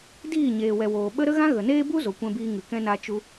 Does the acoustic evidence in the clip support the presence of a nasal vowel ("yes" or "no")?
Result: yes